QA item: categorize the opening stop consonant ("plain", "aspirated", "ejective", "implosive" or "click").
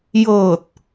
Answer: plain